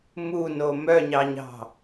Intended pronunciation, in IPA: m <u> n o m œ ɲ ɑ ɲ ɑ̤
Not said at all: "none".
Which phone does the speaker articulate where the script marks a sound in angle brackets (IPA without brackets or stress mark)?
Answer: u